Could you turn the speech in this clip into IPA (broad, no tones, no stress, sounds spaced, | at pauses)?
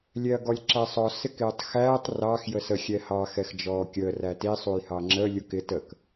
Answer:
lʲ ɛ ɐ̯ ɡ ɔ lʲ ǁ æ sˤ ɔ s ɪ k ɪː tˤ x æː tˤ r ɑ x j ə s ə xʲ ɛ h ɑ x ɛ x d͡ʒ ɔː kʲ əː r æ t i sˤ u j h ɑ ŋ͡ǁ ə lʲ u k ɪ t ə k